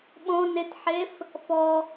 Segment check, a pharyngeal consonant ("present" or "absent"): present